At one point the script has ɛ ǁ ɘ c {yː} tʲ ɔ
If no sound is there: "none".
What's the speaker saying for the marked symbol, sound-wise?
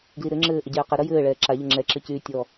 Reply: yː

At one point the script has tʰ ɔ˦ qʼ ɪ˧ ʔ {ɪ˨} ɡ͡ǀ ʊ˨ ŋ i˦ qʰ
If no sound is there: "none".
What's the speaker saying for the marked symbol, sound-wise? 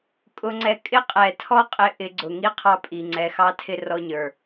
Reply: ɪ˧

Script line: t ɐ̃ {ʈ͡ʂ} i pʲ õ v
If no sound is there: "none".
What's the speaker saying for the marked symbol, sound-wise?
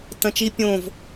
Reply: t͡ʃ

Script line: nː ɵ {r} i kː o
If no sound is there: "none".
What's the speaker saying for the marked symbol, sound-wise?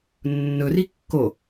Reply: r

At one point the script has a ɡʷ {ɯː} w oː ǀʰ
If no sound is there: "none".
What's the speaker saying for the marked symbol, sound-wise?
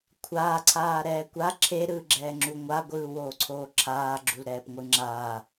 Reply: ɯː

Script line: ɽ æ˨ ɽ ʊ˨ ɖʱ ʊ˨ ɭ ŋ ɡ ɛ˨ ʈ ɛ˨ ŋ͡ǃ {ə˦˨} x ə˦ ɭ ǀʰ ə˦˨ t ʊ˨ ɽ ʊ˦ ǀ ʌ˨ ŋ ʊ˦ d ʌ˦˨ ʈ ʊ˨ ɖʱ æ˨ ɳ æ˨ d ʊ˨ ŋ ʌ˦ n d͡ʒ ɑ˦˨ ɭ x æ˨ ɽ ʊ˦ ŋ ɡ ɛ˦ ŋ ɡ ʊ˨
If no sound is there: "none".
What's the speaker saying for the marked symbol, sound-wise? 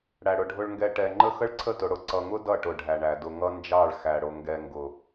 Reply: ə˦˨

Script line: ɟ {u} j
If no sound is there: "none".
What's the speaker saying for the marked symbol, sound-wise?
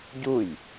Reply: u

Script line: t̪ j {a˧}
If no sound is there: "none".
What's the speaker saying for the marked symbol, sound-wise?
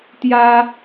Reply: a˧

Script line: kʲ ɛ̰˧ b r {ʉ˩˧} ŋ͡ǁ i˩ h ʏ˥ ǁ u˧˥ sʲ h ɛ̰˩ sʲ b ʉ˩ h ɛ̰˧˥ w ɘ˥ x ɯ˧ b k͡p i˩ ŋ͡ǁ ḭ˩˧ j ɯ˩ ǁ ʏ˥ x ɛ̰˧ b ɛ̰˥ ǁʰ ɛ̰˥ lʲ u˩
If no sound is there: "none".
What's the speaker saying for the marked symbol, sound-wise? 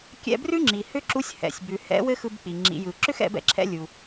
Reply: ʉ˥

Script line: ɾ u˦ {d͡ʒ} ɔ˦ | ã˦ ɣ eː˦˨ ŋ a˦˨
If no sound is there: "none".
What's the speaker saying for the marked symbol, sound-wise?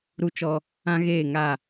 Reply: t͡ʃ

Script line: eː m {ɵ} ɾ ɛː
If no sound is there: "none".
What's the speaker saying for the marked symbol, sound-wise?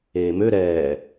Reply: ø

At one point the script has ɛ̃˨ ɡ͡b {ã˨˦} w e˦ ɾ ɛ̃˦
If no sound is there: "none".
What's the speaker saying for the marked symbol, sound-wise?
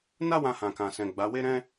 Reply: a˨˦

